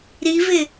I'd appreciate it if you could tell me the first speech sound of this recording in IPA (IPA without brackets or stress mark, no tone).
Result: ɾ